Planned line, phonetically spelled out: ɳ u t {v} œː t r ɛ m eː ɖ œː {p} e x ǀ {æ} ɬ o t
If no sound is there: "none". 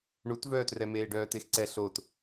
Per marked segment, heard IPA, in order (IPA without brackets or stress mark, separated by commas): v, t, ɛ